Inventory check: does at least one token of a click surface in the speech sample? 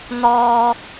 no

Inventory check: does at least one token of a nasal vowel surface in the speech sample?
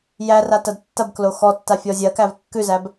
no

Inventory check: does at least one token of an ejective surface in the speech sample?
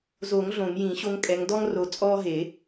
yes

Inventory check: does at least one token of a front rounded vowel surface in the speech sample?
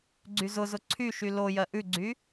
yes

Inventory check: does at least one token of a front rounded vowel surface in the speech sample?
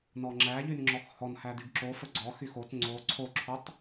yes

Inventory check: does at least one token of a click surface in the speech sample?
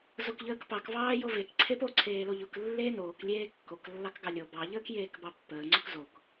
yes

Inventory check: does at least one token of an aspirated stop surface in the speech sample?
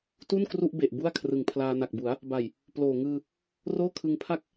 yes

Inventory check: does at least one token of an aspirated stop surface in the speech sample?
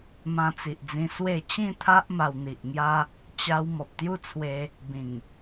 yes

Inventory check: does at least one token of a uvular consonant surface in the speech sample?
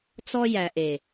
no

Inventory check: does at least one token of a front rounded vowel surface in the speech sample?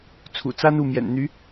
yes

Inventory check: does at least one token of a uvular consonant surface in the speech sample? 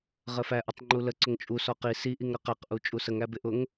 yes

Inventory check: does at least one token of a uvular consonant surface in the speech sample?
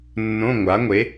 no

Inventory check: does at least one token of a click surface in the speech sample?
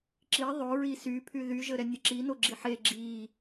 yes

